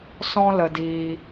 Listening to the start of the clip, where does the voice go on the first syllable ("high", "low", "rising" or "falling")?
high